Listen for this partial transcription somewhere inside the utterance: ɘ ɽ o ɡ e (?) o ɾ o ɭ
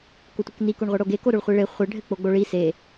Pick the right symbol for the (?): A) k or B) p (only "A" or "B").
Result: A